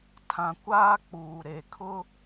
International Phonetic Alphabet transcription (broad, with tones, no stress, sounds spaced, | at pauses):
tʰ ã˨ kʷ aː˦ k͡p uː˨ ɾ e˨ kʰ ʊ˦